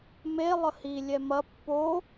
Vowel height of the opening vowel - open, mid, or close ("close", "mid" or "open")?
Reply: mid